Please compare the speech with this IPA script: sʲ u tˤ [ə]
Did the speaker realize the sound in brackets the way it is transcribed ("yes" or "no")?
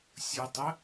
yes